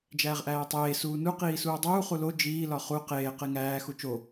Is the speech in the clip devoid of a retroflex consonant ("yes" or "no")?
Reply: yes